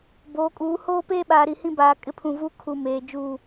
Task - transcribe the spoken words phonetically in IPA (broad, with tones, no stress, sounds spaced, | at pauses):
b oː˨˦ kʼ uː˨˦ h oː˦ p eː˦ ɓ aː˨ ɾ i˨ h ĩ˦ b aː˨ kʼ ɪ˦ pʰ ũ˨ v uː˦ kʰ u˨ m eː˨ d͡ʒ uː˦˨